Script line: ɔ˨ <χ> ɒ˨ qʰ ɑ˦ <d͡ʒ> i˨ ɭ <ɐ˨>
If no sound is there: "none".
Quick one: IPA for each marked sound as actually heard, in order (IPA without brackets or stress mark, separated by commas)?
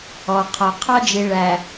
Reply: qʰ, d͡ʒ, æ˨